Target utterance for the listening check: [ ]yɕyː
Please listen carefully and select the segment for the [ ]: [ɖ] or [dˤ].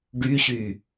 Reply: ɖ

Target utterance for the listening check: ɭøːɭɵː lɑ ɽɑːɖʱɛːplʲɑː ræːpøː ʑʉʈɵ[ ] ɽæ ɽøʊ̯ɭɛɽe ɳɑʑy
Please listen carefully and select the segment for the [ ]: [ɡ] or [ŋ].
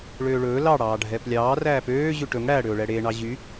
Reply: ŋ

